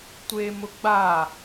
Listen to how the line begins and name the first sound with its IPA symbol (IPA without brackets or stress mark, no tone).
tʷ